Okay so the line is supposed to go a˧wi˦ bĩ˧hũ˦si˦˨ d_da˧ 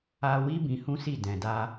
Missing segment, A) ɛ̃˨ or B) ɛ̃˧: A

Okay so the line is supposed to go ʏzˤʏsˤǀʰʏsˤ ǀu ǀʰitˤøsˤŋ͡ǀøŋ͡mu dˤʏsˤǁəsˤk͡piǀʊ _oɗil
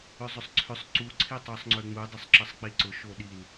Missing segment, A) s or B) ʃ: B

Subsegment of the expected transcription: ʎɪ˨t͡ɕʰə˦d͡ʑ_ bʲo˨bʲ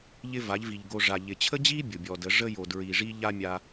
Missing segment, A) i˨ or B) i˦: B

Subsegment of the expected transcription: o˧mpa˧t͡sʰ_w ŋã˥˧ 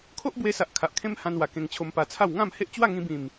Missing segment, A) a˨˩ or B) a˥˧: B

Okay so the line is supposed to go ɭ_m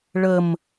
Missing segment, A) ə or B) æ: A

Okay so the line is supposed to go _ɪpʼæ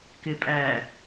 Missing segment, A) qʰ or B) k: B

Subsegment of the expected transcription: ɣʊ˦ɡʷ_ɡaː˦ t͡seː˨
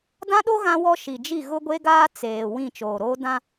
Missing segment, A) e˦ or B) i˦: A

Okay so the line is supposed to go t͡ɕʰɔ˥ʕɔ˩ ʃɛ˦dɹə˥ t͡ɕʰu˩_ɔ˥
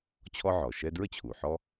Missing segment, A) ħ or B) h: A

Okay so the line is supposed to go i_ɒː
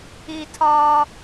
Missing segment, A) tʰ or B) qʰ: A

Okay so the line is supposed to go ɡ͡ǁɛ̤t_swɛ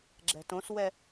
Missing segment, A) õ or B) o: A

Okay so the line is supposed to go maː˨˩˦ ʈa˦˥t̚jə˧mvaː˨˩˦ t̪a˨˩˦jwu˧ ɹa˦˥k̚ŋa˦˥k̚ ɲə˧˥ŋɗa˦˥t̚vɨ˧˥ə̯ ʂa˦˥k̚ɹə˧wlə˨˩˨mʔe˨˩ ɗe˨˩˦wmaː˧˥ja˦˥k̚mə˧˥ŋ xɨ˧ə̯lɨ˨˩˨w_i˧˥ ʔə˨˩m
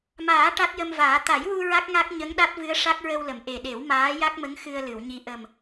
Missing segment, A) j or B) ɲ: B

